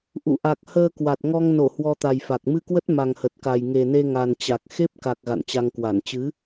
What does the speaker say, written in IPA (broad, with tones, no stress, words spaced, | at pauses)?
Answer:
ʔṵ˧˨ʔa˨˩k̚ həː˧kwa˨˩t̚ŋɔ˧ŋ no˧˩ hwɔ˧t̪a˨˩jfa˨˩k̚ mɨ˧kwə˦˥t̚ ma˨˩ŋhə˨˩t̚ka˨˩j ŋe˨˩ne˧ŋa˨˩nt͡ɕa˨˩k̚ xe˦˥p̚ka˨˩k̚ ɣa̰˧˨nt͡ɕa˧ŋ kwa˧˩n t͡ɕɨ˨˦